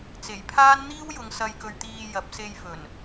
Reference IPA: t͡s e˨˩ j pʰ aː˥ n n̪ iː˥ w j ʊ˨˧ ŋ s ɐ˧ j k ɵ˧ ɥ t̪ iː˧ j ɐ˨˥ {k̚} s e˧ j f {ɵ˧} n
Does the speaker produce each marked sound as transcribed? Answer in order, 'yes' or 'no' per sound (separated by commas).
no, no